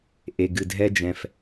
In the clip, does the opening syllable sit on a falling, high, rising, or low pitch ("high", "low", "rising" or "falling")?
low